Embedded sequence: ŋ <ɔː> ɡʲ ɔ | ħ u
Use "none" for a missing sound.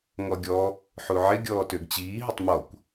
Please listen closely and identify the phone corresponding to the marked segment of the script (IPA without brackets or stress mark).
ɔ